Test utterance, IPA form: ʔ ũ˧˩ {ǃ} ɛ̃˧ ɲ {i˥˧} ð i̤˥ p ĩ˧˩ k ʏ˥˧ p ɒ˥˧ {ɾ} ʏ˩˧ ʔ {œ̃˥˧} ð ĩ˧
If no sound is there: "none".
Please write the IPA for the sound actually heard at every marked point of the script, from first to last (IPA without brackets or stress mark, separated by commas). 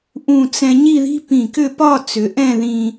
t͡s, i˥˧, t͡s, ɛ̃˥˧